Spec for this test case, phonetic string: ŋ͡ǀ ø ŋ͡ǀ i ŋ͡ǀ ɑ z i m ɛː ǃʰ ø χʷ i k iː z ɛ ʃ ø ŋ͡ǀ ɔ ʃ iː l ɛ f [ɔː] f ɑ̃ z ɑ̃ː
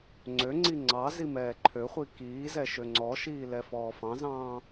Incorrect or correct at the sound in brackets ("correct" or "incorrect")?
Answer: correct